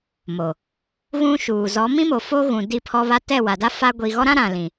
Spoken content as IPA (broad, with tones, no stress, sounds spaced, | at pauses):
m o˨ | ɣ ũ˦ ʃ uː˨ z ɔ˨˦ m ĩ˦ m o˨ f o˦ ɣ ũ˨ d i˦˨ pʰ ɔ˦ β a˦ t ɛ˦˨ w a˨ d a˦ f a˦ ɡʷ i˨ ɣ ɔ˦ ɾ ã˦ ɾ ã˨ l ĩ˨